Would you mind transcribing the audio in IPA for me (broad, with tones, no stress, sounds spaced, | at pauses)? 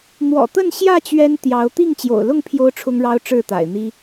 n̪ w ɔ̰˨˩ t̪ ə˥˨ n ɕ j ä˥˨ t͡ɕ ɥ ɛ˦ n t̪ j ɑ˨˦ ʊ̯ t̪ i˥˨ ŋ t͡ɕ j o̰˨˩ ʊ̯ l ʊ˥˨ ŋ pʰ j o˦ ʊ̯ ʈ͡ʂʰ ʊ˦ ŋ ɻ ɑ˦ ʊ̯ ʈ͡ʂ ɻ̩˥˨ t̪ a̰˨˩ ɪ̯ n̪ i˦